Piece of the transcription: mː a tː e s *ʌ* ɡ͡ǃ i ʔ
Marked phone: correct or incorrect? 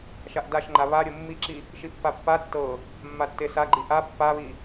incorrect